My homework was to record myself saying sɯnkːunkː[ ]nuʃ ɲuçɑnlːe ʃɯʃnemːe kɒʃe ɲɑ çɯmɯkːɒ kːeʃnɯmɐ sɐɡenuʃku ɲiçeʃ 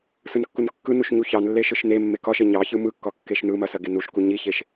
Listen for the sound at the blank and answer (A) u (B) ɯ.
B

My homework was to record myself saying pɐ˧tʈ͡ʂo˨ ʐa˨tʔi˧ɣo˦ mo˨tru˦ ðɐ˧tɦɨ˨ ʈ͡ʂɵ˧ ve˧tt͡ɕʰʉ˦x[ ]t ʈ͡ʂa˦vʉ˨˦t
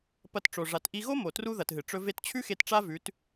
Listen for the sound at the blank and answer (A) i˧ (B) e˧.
B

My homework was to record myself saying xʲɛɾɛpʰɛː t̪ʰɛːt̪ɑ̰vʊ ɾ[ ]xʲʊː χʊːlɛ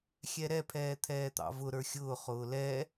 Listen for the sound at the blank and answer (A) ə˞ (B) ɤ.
A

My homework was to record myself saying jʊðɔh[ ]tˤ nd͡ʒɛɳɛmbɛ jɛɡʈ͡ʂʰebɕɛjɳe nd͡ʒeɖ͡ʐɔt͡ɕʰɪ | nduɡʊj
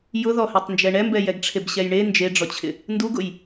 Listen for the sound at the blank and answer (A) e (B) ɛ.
B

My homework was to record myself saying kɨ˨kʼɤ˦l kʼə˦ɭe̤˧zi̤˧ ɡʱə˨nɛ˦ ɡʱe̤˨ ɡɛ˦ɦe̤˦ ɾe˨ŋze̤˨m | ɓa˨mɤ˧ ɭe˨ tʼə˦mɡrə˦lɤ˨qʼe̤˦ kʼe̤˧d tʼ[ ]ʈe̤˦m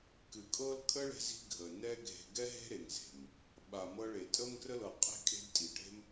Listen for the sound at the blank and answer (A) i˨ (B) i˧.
A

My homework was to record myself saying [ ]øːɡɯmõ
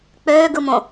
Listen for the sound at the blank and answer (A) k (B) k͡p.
B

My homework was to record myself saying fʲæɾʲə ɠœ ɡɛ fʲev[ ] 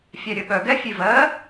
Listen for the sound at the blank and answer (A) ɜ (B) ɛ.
A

